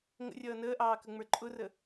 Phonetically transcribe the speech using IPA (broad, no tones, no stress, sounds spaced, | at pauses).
ŋ ə̰ rʲ ʌː n əː ʔ ɑː k ə ŋ͡m ə˞ ǃʼ ʊ r ə